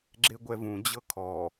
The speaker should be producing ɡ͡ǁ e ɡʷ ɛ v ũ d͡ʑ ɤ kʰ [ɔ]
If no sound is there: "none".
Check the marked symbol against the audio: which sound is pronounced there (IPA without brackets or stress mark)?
ɔ